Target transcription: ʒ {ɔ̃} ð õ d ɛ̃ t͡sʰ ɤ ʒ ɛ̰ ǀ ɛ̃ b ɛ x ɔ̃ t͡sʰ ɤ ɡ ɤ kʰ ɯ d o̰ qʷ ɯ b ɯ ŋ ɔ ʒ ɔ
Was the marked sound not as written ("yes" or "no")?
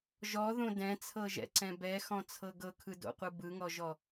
yes